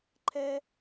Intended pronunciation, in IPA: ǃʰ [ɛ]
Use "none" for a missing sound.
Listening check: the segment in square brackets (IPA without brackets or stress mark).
ɛ